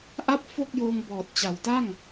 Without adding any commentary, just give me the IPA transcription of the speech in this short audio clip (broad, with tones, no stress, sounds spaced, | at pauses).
ʔ a˦˥ p̚ f o˥˩ k̚ j oː˧ ŋ b ɔː˨˩ t̚ t͡ɕ a˩˦ w t a˥˩ ŋ